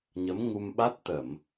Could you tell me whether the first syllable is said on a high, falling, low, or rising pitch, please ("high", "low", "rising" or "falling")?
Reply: rising